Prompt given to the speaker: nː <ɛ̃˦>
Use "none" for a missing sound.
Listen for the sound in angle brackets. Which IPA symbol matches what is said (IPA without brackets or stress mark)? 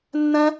ɛ̃˦